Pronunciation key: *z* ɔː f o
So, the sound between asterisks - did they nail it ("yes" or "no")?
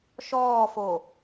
no